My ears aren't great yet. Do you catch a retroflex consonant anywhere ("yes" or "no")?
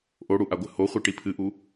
yes